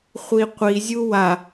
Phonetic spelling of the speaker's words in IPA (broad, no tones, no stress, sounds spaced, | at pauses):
χʷ i qʷ i zʲ u w a